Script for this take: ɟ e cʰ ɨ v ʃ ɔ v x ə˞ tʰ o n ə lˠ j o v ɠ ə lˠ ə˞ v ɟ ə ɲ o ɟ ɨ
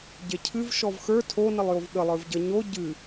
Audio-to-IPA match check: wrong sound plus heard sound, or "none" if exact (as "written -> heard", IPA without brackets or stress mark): none